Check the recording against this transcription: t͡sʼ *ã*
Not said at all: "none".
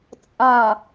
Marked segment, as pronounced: ɑ̃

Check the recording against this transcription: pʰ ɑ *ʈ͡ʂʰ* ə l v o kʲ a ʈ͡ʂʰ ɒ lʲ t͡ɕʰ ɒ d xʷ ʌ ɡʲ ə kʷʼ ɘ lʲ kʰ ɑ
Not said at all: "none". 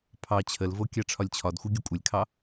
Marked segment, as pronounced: t͡ɕʰ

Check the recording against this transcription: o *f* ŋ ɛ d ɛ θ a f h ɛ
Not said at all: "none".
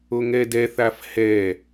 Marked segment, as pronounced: none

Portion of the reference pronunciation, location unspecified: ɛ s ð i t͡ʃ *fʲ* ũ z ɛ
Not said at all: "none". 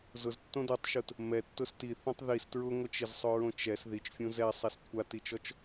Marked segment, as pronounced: fʲ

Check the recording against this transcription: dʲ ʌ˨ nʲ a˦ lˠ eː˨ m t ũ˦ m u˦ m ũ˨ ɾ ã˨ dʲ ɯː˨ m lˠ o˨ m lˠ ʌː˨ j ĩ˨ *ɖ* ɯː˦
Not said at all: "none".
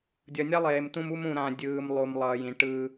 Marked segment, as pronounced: ʈ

